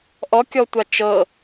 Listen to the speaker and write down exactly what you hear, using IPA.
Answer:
ʔɔkʲɔtʷa t͡ʃɤ

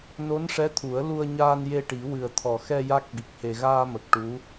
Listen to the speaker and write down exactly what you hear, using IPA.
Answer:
no˧˥nʂɛ˧˥t̪ʰu˨˩˦ə̯ lu˧ə̯ɲaː˧n je˧ʈi˨˩˦ wɨ˨˩ə̯t̪ʰɔ˨˩xɛ˧ ja˦˥k̚ɓi˨˩k̚he˧ ɣaː˧mə˨˩k̚ ʈu˧˥

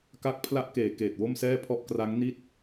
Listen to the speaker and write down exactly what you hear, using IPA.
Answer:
ka˦˥k̚pʰla˦˥ʔkeː˩˦ keː˨˩t̚wo˥˩msɛː˥˩pʰɔ˥˩ʔ kra˦˥ŋni˥˩t̚

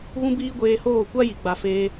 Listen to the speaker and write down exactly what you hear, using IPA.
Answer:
ɣũ˦biː˦ɡʷeː˧hoː˦˨ kʷa˦ji˨ɡ͡ba˨ feː˧

